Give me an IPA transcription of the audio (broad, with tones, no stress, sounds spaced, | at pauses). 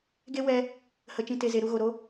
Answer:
ɡ e˦ w ɛ˧ | h ə˨ t͡ʃ ĩ˨ t e˨ z e˨ ɾ u˧ ɣ o˨ ɾ o˦